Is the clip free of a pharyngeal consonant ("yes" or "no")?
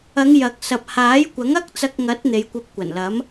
yes